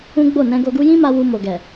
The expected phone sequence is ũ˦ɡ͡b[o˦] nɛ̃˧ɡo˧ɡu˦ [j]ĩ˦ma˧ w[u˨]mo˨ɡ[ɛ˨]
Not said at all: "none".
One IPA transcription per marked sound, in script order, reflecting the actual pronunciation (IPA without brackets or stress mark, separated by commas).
o˦˨, j, u˧, ɛ˨